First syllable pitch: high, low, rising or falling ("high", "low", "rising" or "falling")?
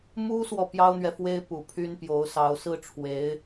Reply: high